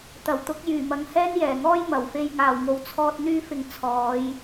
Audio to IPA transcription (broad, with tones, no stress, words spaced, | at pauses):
t̪ɐ˨˩wt̪ʊ˨˥k̚ jyː˨˩mɐ˨ŋ hɛː˥njɛː˨˩ŋɔː˥j mɐ˨˩wfe˧j ŋaː˨˩wŋo˨wt͡sʰɔː˧t̚ n̪yː˥fɪ˧ŋ t͡sʰɔː˨˧j